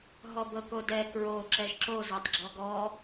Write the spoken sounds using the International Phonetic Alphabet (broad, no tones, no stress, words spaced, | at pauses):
ɦɔbɤkodɛ kɹo ǁɛʒǁo zɤtˤɡ͡ǁɔɡɔ